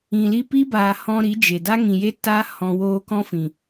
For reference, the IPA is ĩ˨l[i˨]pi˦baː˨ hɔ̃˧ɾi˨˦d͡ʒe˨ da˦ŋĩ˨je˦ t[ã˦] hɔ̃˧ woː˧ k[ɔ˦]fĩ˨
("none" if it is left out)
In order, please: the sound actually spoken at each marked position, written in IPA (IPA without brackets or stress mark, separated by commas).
i˧, a˦, ɔ̃˦